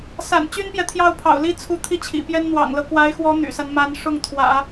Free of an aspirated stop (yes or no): no